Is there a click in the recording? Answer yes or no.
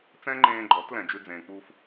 yes